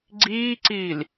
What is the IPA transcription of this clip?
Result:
ɡ͡ǀ iː ǀ iː l

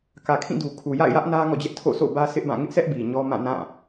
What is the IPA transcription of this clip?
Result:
k ä˨ kʰ ĩ˦˨ d u˨ kʰ u˨ j a̰˦˨ ɪ̯ j ä˦ ʔ n ä˦ ŋ ɔ̰˦˨ d͡ʑ ɛ˦ ʔ tʰ o̰˦˨ sʰ o̰˦˨ b ä˦ sʰ ɪ˦ ʔ b ã˦˨ ŋ ɪ˦ ʔ sʰ ɛ˦ ʔ b i˨ ɲ ɔ˦ m ã˦˨ n ã˦˨

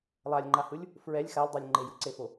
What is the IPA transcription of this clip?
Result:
lˠ a lʲ ŋ͡ǃ a h ɯ lʲ | f ɹ ɛ lʲ x a lʲ dˤ o lʲ ŋ͡ǃ e j ɯ ǀ e f o

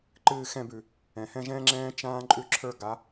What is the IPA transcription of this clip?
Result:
ǃ ɨː˦˨ x ɛ̃˦˨ b ʉ˩ | ɛ̃˩ h ɛ̃˦˨ ʒ ɛ̃ː˦ ŋ͡ǁ ɛ̃ː˦ t͡ʃ ãː˦ ǃʼ ʉ˦˨ ǁʰ ə˞˦˨ ɡ a˨˦

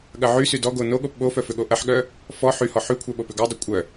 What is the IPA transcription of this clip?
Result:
ɠ ɐ ʕ y s y d ɔ ɡ o n o ɠ o p ɓ o f œ f ʏ ɠ o ʔ ɐ ħ ɠ œ | f ɔ ħ y h ɔ ħ y kʷʰ œ ɓ o p ʏ ɡ œ dˤ ʏ kʷʼ œ

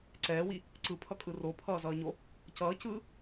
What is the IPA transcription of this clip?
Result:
ǀ ɛː w i | ǀ ɯ pʰ ʌ kʼ ɯ r o pʰ ʌː z ʌː ɲ o | c ʌː c ɯː

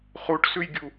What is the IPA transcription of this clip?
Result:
χ u ʈ s ʉ j ɡʲ u

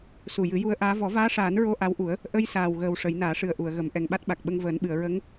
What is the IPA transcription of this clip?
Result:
s u˨˩ j ɨ˨˩˦ j u˧ ə̯ ʔ aː˧˥ v ɔ˨˩˦ v aː˧˥ ʂ aː˨˩˦ n ɹ o˧ ʔ a˧˥ w ʔ u˨˩˦ ə̯ | ʔ ə˧ j s aː˨˩ w ɣ əː˨˩ w ʂ ə˨˩˦ j n aː˨˩˦ ʂ ɨ˨˩ ə̯ ʔ u˨˩˨ ə̯ ɣ ə˨˩˦ m ʔ ɛ˨˩ ŋ ɓ a˦˥ t̚ ɓ a˨˩ k̚ ɓ ə˧ ŋ v əː˨˩˦ n ɓ ɨ˨˩˨ ə̯ ɹ ə˧˥ ŋ

